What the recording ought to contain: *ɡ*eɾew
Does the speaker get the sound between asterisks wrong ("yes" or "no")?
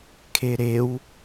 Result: yes